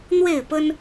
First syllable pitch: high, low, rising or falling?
falling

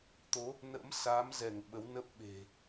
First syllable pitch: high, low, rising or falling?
rising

